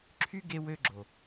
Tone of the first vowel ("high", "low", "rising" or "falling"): high